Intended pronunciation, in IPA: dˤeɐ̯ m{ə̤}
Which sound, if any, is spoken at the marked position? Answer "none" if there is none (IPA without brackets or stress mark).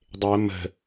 ə̤